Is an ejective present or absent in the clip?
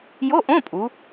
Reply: present